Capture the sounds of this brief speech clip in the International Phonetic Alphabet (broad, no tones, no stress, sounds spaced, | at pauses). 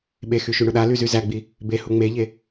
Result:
ɓ e x y ʃ y ɳ ʊ ɗ a l y z y z æ ɡ͡b i | b e h u ŋ͡m e ʎ e